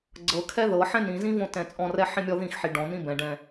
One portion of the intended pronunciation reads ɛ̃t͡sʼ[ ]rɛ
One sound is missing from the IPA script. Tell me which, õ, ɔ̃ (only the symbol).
ɔ̃